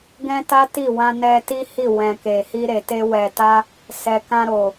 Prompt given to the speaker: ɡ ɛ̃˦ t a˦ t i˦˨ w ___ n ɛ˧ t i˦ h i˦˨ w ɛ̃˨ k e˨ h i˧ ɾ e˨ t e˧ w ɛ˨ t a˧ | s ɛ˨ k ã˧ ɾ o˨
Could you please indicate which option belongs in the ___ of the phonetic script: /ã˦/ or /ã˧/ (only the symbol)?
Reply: ã˧